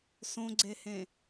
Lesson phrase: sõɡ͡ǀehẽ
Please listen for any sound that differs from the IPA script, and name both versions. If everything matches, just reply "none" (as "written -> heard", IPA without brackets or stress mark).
none